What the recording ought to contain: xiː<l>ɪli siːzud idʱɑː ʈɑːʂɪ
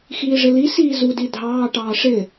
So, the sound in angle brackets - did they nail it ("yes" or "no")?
no